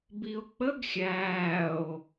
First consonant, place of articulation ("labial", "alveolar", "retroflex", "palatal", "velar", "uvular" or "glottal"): labial